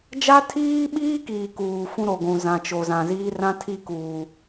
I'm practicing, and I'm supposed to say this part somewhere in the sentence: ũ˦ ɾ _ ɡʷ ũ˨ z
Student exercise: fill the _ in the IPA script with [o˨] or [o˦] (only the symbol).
o˨